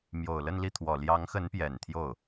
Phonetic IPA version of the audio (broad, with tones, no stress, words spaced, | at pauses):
mjo˨˩ʊ̯lə˥˧nli˥˩t̪ʰwɔ˨˩ ljɑ˧˥ŋxə˧˥npjɛ˨˩n t̪ʰjo˥˩ʊ̯